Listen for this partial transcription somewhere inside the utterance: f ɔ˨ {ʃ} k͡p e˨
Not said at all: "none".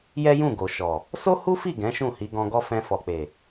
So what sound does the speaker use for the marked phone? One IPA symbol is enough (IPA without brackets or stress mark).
none